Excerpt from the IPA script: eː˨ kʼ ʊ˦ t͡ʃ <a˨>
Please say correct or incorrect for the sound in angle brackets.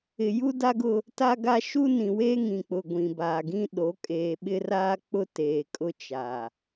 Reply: correct